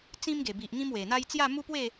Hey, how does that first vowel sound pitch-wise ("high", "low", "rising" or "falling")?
high